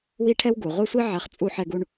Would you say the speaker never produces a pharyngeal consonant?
no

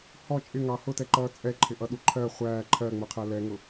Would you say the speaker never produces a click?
no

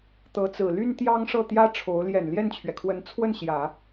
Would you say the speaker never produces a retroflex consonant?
no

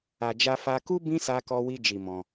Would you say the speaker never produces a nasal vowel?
no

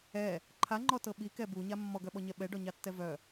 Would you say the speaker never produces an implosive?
no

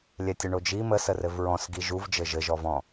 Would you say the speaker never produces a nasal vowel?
no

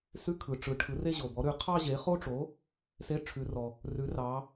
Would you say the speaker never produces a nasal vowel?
yes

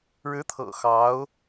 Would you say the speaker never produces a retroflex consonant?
no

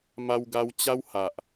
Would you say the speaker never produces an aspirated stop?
yes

